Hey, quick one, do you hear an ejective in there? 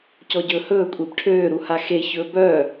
yes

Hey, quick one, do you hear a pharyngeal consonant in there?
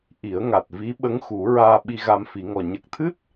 no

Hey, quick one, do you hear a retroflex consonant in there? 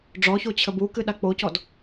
yes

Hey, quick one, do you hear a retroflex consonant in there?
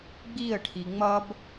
yes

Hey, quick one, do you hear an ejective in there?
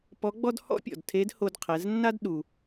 no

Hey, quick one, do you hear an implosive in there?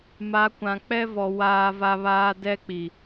no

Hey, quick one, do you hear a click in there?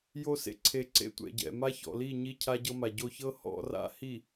yes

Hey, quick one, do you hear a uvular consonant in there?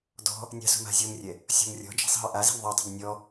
no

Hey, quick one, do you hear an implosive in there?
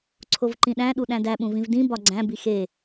yes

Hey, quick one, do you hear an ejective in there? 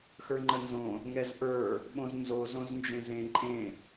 yes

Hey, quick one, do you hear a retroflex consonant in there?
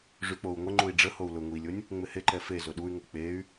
yes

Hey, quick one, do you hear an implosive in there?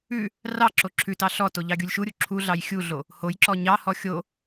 no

